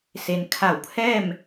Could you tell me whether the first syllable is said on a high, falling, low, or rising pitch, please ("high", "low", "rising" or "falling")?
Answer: low